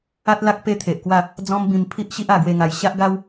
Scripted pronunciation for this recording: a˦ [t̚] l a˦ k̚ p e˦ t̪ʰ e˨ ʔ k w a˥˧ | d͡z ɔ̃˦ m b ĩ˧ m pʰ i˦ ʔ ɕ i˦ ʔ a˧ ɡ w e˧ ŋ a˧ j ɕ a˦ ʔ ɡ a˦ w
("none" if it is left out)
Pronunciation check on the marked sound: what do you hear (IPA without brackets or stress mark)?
t̚